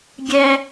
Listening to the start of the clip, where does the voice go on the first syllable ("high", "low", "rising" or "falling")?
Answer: high